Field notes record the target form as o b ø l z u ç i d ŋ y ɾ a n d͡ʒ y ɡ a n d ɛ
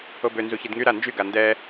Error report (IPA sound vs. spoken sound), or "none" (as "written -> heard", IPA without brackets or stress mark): l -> n